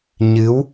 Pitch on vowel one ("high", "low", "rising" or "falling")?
rising